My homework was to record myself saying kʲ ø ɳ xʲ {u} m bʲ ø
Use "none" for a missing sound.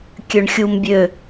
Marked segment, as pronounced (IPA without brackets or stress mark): u